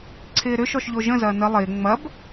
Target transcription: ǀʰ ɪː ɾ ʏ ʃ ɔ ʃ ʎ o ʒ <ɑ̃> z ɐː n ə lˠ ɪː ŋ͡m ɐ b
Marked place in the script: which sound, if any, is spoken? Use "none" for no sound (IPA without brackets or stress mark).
ə̃